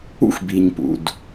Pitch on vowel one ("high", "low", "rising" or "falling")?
high